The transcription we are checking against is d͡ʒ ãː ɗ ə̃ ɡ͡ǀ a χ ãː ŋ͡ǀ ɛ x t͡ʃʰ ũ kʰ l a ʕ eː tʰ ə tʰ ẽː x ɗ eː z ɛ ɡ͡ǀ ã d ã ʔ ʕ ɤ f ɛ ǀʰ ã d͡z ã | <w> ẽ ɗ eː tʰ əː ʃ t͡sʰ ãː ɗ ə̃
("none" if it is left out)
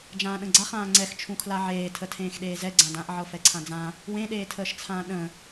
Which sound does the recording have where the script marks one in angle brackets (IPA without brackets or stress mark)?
w